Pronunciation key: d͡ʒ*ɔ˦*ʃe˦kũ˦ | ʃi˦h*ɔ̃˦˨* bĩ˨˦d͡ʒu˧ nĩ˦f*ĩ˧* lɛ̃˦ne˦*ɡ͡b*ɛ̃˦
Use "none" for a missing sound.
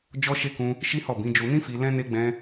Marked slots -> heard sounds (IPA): ɔ˦, ɔ˦˨, i˧, ɡ͡b

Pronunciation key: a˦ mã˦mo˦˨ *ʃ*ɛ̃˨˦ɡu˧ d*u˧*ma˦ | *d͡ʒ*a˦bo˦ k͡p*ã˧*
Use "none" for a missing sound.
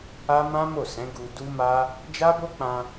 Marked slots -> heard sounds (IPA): s, u˦, d͡ʒ, ã˧

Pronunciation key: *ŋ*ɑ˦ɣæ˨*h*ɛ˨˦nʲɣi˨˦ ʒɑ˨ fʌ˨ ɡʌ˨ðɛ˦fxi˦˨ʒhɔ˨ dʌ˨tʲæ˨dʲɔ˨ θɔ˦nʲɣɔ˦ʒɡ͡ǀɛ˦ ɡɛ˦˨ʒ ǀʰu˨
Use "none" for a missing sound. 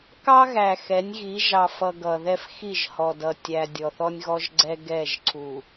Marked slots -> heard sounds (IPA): k, x

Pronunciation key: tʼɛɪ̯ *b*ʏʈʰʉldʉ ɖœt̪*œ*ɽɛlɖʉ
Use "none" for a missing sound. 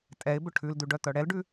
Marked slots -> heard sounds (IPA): b, œ

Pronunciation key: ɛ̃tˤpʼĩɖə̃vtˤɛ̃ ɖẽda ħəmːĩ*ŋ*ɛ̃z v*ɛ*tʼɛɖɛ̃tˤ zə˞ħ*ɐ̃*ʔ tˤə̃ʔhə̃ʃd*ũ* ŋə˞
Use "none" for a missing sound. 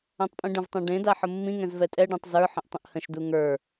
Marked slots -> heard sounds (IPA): ŋ, ɛ, ə̃, u

